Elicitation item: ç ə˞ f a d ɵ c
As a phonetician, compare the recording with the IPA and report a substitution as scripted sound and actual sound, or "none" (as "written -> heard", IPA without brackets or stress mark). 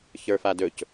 none